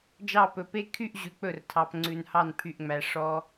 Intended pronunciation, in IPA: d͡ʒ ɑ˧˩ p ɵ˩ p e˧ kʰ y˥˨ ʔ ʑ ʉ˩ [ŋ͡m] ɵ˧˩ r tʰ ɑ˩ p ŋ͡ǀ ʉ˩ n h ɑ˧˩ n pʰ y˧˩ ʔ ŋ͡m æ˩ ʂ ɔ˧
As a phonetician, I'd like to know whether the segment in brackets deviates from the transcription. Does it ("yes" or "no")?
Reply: yes